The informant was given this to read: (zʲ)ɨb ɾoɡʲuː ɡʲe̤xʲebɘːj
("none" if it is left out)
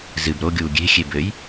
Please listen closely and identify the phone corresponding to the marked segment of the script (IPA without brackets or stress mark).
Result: z